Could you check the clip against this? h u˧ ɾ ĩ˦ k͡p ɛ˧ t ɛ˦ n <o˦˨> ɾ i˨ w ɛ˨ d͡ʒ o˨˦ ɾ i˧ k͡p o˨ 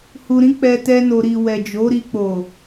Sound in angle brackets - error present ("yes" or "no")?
yes